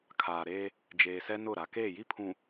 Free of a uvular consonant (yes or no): yes